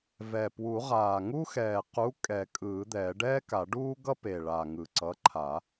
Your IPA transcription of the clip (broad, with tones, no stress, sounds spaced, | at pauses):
v ɛ˨˩ p w u˨˩˦ ʁ aː˨˩ ŋ u˥ x ɛː˨˩ q u˨˥ kʼ ɛ˨˩˦ kʼ ɯː˨˩˦ d̪ ɛ˨˩˦ ɖ ɛː˥ k a˨˩˦ ɖ uː˥ ɡ ʌ˥ p e˨˩ ɭ a˨˩ ŋ ɯ˨˩ ǀ ʌ˨˥ ǃʰ a˨˩˦